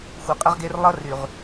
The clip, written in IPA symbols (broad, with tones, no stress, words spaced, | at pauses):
xʷʌ˨qʼə˦ʁɡe˦r lˠʌ˦ry˨ʁ